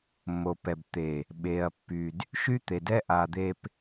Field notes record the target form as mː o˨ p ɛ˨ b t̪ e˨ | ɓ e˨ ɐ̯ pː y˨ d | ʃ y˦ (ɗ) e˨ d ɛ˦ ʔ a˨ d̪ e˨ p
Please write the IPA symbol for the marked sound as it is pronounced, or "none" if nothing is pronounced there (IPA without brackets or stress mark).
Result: t̪